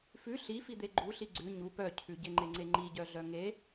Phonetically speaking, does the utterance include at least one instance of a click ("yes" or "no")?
yes